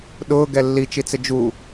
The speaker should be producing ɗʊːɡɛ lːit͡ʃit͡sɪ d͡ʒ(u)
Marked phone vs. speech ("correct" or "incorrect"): correct